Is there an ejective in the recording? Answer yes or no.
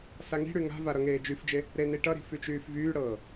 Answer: no